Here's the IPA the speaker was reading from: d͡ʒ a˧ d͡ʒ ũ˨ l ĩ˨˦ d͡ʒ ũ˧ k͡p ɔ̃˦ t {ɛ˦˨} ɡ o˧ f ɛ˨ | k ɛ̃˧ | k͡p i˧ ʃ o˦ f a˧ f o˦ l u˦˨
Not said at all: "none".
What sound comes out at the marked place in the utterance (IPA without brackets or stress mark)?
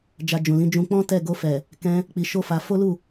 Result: ɛ˦˨